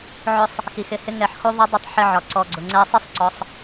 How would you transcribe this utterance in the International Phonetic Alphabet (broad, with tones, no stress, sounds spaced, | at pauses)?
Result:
ʕ ʊ˧ sˤ | x i˨ x ɪ˧ h ɪ˧ ŋ ɛ˨ ħ x u˧ ðˤ ə˧ dˤ ɪ˧ tˤ ħ ɪ˧ ʕ ɒ˨ ǀ ɔ˨ ɡ͡ǀ ʊ˨ ŋ͡ǀ ɛ˧ sˤ ɪ˦ sˤ ǀ ɔ˧ sˤ